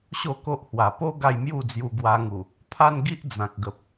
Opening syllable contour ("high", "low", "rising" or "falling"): falling